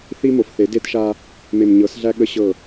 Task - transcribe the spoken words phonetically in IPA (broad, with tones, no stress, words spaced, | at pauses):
θi˦mo˨fθe˨˦ de˦tʃa˦ | me˨m ɲɤ˨˦sɮæ˦ ɠə˦ɕɤ˦˨